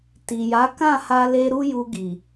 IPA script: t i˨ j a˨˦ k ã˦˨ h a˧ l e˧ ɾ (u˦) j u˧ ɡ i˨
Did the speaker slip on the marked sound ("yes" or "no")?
no